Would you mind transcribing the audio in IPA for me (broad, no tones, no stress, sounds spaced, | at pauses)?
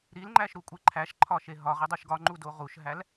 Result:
ɾ i l ŋ͡ǃ æ ʃ ɾ u kʷʼ e ǃʰ æ ʃ ǃʰ ɒ ʃ e ɦ ɒ ʁ e dˤ u ʃ ɡ ɒ ŋ͡ǃ u d o ʁ u ʃ ɦ æ l